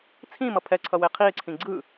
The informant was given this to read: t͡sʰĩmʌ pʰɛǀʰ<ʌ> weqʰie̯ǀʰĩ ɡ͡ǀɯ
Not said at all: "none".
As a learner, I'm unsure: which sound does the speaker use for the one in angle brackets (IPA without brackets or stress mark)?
ʌ